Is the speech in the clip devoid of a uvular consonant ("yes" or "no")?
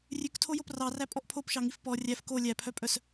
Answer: yes